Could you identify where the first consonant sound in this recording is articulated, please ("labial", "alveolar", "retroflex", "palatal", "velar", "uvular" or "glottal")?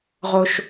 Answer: uvular